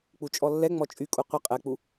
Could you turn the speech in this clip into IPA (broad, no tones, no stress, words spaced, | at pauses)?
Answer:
k͡put͡ʃʼɔlːɛ ŋ͡mɔt͡ʃʼykʼu qʷə qʼɛk͡pu